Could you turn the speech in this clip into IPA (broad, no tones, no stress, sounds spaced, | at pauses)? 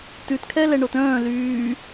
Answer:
t ʉ t kʰ ɛ l ɛ ɳ o t œ̃ː l yː